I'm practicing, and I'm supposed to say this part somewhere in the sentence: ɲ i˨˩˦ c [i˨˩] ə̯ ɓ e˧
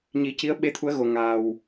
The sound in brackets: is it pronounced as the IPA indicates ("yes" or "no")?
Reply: no